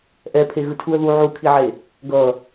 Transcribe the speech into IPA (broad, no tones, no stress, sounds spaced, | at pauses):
ʔ ɛ pʰ e ɣ ɯ tʰ u ə̯ ð u ʕ u kʰ i ʕ e | ɡ ʌ